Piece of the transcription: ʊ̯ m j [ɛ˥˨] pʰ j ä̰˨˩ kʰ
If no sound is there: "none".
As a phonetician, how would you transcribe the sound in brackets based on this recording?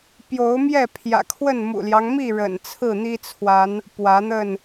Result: ɛ˥˨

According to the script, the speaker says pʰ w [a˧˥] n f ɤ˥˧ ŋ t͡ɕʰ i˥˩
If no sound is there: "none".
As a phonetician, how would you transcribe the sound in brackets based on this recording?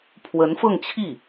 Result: ə˧˥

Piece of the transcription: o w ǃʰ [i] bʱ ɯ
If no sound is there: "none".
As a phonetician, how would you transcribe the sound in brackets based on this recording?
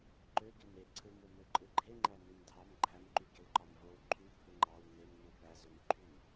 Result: y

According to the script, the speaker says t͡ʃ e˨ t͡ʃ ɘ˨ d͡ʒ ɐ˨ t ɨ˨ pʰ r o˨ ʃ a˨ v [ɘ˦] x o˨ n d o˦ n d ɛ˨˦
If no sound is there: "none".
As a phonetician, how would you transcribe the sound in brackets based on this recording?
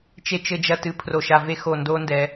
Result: e˦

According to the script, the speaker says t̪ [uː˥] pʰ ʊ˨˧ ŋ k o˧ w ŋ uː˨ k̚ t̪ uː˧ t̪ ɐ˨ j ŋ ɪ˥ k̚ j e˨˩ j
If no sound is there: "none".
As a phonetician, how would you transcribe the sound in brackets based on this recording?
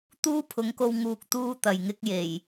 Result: uː˥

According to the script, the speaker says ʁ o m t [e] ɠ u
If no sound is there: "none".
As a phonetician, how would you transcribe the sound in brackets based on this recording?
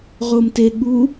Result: e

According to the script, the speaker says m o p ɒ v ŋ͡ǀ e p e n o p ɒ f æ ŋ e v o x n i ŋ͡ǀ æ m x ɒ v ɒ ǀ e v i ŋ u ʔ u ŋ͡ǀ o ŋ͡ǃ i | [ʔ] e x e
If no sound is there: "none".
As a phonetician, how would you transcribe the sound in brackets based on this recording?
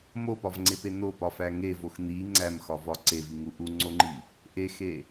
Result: ʔ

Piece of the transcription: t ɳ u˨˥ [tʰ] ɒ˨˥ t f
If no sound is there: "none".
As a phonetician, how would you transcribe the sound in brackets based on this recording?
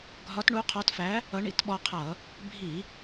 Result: qʰ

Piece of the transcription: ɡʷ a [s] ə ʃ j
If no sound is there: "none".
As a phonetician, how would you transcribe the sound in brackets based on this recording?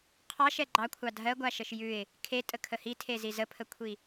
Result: ʃ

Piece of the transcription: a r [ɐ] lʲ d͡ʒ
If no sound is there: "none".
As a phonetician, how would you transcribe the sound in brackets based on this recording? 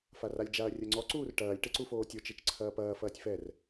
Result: a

